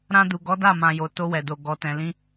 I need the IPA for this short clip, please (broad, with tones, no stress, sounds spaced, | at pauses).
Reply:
ɾ ã˧ d u˨ ɡ ɔ˨˦ d a˦˨ m ã˨ j o˨ t o˧ w ɛ˨ d o˨ ɡ ɔ˨ t ɛ̃˨ l ĩ˧